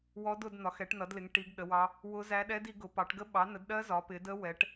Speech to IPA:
w ɔ˦˥ d ʊ˨˦ d n̪ ɒ˨˦ x ɛ˨˦ ʈ n ʌ˨˦ d l ɪ˨˦ ŋ ʈ i˨˦ ɡ ɗ ə˨˦ w ɑ˦˥ | w ʊ˦˥ z æ˦˥ ɗ ɛ˦˥ d i˨˦ ɡ ʊ˨˦ p ɑ˨˦ ʈ ɡ ə˦˥ ɓ ɑ˨˦ n ə˨˦ d ɗ ɜ˦˥ z ɒ˨˦ p ɪ˨˦ d ə˦˥ w ɛ˨˦ ʈ

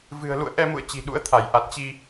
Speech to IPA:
v ɨ̤˨˩ ə̯ l ṵ˧˨ ə̯ ʔ ɛ˧ m ṵ˧˨ ə̯ t͡ɕ i̤˨˩ ɗ ṵ˧˥ ə̯ t̪ʰ a˧˩ j ʔ a˨˩ t̚ t͡ɕ i˧

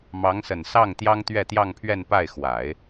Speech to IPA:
m ɑ˧˥ ŋ s ə˨˩ n s ɑ˥˩ ŋ t̪ j ɑ˥ ŋ t̪ ɥ ɛ˥˧ t̪ j ɑ˥˧ ŋ pʰ ɥ ɛ˥˧ n p a˥˩ ɪ̯ x w a˨˩˦ ɪ̯

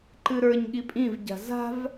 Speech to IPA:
ǃ ɨ ɾ ə˞ ɲ ɠ i pʼ ĩ v ɟ a̤ z a̤ v

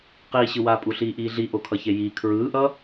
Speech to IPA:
q iː ɕ ɯ w aː pʼ u ɬ iː ʔ iː ɮ i ʔ o kʰ ʌ ç e j iː kʰ ɹ ɯː ʔ ʌ

